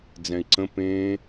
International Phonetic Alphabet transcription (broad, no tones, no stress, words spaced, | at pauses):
d͡zɛ̃i̯ǀə̃ pẽ